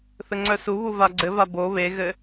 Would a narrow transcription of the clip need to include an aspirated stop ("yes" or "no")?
no